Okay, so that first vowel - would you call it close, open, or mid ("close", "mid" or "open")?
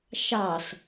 open